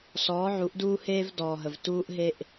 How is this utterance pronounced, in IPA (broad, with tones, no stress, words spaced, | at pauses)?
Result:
sɔː˨˦ʕu˨˦ʔduː˦heː˦v dɔː˨ɦə˨v tuː˦ʔɦe˦ʔ